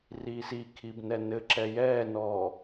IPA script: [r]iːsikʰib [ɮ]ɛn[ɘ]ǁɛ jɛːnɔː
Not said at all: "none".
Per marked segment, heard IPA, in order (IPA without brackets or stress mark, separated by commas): r, n, ɘ